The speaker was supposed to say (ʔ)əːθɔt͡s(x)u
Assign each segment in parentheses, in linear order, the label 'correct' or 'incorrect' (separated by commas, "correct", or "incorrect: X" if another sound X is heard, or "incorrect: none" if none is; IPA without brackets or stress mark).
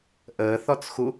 correct, correct